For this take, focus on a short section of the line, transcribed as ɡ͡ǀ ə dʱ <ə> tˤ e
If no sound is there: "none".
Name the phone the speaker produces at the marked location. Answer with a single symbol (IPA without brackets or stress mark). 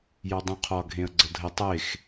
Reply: ə